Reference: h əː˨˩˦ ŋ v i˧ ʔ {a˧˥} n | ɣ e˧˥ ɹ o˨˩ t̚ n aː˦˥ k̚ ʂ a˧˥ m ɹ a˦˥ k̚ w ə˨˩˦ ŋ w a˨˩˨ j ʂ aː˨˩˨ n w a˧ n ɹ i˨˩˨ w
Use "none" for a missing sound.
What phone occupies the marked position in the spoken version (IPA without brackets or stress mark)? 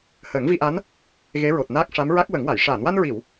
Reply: a˧˥